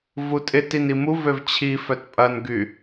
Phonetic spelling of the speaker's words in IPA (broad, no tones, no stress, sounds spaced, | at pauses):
v u tʼ ɪ t i n i m u v ø v t͡ɕʰ i f œ t pʼ ɐ n ɡ y